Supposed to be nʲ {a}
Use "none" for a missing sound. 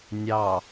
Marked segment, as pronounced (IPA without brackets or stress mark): ɑ